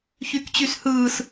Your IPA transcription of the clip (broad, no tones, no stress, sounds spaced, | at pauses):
ç y k t͡ɕ y s h ɯː s